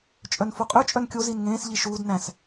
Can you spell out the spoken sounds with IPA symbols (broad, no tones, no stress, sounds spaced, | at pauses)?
t͡ʃʼ œ n f o qʼ ʉ t͡ʃʼ œ n kʲ o z i n ŋ ẽː s ʎ i ʃ uː d n æ̃ s